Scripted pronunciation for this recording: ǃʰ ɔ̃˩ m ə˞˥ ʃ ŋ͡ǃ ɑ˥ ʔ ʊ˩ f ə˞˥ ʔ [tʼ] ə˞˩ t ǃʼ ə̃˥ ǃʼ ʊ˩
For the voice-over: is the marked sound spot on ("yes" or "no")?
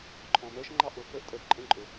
yes